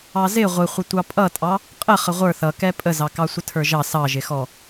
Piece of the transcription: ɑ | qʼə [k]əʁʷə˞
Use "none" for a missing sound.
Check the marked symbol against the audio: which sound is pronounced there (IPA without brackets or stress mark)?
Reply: χ